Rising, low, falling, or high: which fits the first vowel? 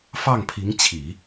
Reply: falling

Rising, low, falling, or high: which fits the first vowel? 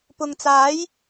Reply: low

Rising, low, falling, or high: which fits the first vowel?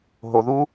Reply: low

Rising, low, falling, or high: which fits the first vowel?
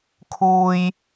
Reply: high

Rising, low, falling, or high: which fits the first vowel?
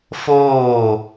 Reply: falling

